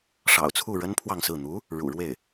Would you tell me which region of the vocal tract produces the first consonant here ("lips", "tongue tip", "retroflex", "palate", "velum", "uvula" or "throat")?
retroflex